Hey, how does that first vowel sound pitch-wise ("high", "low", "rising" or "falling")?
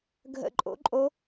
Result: falling